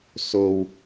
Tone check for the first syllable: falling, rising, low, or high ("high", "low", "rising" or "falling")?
high